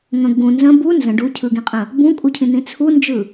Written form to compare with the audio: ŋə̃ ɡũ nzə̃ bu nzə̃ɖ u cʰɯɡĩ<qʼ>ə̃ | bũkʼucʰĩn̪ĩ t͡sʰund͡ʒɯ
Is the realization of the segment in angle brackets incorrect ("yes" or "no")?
no